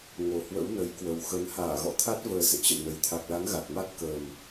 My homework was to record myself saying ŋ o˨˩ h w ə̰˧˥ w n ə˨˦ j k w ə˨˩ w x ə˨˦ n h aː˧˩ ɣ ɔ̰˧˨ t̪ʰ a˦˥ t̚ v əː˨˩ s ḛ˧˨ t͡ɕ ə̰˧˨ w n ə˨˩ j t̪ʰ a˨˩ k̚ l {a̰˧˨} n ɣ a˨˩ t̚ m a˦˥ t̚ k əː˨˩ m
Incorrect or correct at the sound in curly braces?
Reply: incorrect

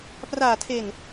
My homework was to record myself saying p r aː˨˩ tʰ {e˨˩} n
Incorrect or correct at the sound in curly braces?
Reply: correct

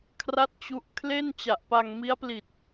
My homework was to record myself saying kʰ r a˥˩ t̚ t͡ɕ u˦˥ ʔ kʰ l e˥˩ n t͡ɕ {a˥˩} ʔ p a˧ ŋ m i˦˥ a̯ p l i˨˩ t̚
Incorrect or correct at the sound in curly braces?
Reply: incorrect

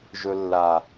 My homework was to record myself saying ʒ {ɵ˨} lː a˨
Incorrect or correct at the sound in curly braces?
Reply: correct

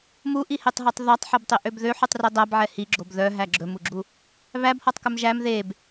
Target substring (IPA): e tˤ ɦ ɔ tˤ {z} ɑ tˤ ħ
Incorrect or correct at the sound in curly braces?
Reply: incorrect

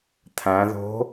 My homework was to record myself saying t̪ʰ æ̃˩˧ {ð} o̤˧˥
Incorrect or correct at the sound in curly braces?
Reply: correct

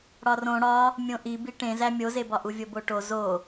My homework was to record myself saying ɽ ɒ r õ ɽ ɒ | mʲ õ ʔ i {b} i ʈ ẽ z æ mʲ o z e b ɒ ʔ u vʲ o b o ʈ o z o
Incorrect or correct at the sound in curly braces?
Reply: correct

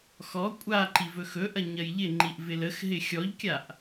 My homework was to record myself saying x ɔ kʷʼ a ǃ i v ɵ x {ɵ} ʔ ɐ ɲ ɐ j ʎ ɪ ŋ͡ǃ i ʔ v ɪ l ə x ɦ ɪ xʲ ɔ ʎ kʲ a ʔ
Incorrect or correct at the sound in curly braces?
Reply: correct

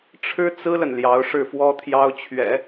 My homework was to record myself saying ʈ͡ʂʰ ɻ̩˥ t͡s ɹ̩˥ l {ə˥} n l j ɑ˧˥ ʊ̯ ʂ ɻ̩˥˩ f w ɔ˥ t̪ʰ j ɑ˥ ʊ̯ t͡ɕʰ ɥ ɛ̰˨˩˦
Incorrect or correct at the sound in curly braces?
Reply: incorrect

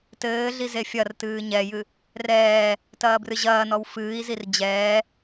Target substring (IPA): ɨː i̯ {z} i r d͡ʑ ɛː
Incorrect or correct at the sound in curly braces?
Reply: correct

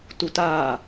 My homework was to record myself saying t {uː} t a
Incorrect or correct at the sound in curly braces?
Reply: incorrect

